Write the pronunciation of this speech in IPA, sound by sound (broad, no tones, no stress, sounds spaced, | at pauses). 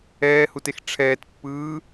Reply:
ɛː h u t e x ʈ͡ʂʰ ɛː t pː ɯː